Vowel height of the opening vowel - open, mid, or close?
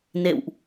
mid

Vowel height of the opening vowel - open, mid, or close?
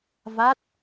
open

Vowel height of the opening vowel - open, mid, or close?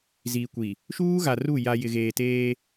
close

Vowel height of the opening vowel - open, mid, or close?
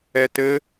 mid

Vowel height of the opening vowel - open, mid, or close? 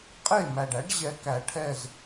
mid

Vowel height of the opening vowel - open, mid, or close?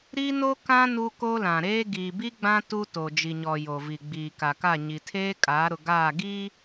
close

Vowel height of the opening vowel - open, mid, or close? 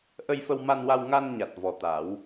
mid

